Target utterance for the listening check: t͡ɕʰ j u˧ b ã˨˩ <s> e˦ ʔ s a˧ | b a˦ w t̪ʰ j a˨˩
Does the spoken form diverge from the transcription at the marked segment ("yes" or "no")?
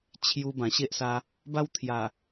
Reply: yes